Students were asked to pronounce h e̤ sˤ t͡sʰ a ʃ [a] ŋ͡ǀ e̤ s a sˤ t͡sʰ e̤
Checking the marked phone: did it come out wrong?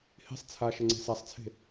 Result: yes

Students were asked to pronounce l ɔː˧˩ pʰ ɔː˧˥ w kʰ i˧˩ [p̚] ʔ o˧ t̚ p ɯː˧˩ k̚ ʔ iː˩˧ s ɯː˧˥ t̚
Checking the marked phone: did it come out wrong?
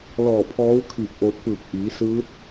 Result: no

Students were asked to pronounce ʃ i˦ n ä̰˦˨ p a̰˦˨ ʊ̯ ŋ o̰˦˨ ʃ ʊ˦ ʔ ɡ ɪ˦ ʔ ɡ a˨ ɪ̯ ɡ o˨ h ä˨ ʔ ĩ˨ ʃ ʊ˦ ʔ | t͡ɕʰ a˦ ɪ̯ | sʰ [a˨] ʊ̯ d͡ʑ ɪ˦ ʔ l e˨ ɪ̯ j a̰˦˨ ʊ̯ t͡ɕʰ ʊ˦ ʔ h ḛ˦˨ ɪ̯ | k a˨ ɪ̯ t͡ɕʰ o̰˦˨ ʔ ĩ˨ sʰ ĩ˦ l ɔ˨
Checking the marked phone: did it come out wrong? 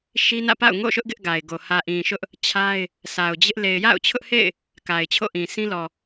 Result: no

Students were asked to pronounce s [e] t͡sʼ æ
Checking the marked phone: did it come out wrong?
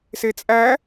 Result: no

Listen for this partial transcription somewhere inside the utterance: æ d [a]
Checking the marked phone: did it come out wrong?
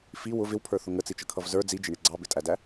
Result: yes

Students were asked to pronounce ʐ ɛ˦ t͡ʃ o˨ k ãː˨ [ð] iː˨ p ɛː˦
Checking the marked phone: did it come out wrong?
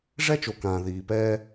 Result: no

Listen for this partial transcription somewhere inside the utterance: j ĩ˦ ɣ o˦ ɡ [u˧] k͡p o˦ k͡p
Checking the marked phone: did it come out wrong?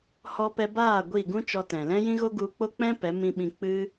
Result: no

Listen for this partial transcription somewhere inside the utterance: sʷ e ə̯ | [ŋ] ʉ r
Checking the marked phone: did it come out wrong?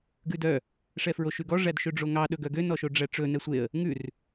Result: no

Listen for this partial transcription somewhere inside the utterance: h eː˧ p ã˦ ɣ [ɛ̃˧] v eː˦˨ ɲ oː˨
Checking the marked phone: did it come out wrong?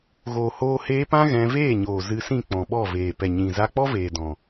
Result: no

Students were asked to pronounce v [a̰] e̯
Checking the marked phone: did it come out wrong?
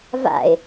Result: no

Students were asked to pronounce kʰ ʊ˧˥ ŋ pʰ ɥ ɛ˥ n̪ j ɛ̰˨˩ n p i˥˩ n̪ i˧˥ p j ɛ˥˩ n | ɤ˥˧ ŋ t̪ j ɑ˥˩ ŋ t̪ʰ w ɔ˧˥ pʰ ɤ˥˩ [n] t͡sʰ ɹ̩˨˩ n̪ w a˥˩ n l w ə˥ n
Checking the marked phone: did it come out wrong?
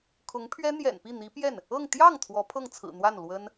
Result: yes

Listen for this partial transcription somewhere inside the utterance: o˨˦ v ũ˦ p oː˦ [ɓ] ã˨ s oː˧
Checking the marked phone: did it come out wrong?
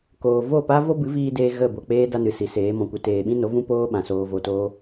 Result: no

